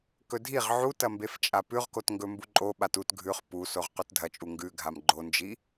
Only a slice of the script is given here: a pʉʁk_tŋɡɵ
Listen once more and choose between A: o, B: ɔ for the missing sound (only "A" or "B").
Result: A